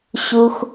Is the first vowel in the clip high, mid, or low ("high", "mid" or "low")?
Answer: high